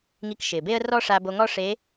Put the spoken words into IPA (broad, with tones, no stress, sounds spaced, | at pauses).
ŋ i˧ k ʃ ɪː˩ b e˥ ə̯ r ɔ˥ ʂ a˧ b o˧ ŋ ɔ˥ ʂ e˧˥